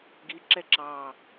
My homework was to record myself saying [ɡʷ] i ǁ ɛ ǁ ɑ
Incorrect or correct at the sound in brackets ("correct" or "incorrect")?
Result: incorrect